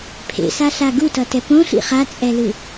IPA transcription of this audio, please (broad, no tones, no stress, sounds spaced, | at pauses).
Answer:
pʰ ḛ s a ɬ a ɡ u t ʌ t ɛ p õ ɬ ḭ χ a t͡sʼ ɛ l ɯ